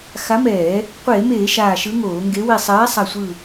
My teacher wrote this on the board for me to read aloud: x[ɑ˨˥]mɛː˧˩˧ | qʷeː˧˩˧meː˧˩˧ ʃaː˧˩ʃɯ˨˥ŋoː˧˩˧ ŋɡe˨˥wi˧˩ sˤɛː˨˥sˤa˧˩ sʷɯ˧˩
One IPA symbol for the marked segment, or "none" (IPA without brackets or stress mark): a˨˥